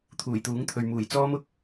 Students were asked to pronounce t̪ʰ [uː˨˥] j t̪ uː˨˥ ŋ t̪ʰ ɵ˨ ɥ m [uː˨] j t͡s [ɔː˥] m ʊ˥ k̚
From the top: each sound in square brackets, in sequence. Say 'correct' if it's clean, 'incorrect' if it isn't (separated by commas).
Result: incorrect, incorrect, correct